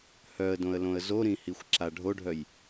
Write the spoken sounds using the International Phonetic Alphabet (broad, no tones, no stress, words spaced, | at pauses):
hœə̯dõə̯lõə̯ zoɾĩhixʷǁa ɖʱoɖʱœj